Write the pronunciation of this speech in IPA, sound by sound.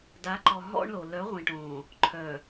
d a˨˦ ǃ ɔ˨ ɦ ɔ̰˦ ɳ l o˨ l œ˨˦ ʁʷ ĩ˨ ʈ õː˨ | ǃʰ œ˨

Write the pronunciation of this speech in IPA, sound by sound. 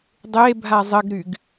dˤ e bʱ a zˤ ə ɡ ɾ y ɡ

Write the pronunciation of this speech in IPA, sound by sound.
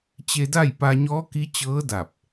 t͡ɕ e˧ d a˥˨ j p a˧ ɲ ɔː˧˥ k i˧˥ t͡ɕ ɤː˧˥ d a˧˩ p̚

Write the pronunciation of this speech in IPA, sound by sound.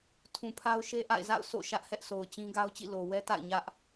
tʰ ũ˨ pʰ a˦ ʊ̯ ʃ e˦ ʔ a̰˦˨ ɪ̯ z a̰˦˨ ʊ̯ sʰ o̰˦˨ ʃ ä˦ ʔ h ɛ˦ ʔ sʰ o˨ ʊ̯ t͡ɕ ĩ˦ ɡ a˦ ʊ̯ t͡ɕ ḭ˦˨ l o˨ w ɛ˦ t a̰˦˨ ɪ̯ ɲ ä˦ ʔ

